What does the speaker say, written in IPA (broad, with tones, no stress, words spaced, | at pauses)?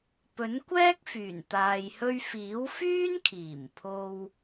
pɵ˨˥nkʷɛː˥k̚fyː˨˩n t̪aː˨jhɵ˧ɥfiː˨˥w fyː˥nkʰiː˨˩mpʰo˧w